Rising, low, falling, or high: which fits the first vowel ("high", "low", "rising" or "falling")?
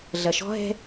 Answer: low